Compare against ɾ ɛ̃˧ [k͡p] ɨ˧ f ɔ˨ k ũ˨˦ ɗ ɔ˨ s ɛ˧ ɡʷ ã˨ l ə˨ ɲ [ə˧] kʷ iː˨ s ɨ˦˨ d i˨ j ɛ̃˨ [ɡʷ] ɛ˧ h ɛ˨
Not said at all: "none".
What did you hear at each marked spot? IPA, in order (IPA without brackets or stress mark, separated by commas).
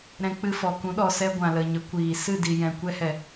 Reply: k͡p, ə˨˦, kʷ